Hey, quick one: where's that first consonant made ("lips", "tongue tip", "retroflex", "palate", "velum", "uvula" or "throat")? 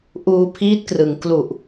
throat